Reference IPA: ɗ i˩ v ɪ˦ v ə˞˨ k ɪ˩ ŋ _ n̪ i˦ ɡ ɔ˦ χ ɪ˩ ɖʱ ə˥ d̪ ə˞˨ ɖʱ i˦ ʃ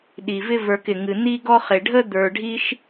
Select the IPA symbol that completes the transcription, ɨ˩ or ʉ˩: ɨ˩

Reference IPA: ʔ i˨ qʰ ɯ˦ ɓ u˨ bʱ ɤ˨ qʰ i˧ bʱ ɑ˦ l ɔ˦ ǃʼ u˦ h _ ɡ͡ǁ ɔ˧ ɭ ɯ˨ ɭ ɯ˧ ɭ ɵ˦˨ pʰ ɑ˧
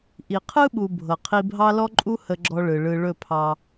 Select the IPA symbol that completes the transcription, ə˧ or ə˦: ə˧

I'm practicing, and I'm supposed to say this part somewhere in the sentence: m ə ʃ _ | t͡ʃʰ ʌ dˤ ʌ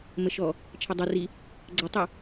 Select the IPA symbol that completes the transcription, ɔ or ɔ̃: ɔ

